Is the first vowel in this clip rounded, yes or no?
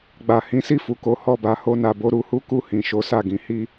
no